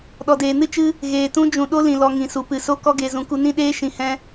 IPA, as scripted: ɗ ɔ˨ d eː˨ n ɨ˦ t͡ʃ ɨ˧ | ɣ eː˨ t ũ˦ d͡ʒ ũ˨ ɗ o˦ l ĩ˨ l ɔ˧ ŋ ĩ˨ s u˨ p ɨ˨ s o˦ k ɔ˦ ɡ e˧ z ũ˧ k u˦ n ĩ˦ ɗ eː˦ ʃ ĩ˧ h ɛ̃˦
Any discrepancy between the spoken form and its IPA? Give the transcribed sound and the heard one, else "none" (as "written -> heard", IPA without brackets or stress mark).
none